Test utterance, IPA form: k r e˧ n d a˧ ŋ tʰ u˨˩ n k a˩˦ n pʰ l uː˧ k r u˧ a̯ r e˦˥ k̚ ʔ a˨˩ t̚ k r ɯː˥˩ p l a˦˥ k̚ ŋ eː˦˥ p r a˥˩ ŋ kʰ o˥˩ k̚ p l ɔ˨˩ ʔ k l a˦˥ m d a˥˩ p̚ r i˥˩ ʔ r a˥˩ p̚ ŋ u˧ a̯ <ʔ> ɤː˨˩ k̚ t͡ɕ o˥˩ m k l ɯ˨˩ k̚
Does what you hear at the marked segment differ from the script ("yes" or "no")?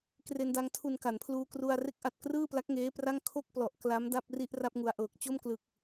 no